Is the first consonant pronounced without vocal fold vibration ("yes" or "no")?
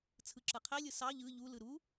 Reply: yes